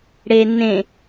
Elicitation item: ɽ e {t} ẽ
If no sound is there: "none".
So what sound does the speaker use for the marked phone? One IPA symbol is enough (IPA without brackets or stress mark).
n